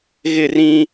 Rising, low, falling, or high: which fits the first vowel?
falling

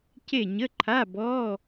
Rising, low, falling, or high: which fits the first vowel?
falling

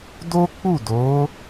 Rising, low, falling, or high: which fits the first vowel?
high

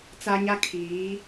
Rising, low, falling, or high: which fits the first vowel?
high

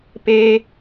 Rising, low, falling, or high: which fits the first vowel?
high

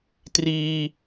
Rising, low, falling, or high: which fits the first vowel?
high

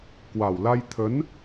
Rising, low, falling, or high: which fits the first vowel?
low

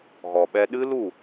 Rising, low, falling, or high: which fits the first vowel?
low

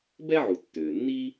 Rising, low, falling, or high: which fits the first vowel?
high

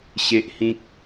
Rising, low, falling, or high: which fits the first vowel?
high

